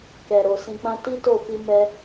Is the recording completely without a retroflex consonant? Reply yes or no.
yes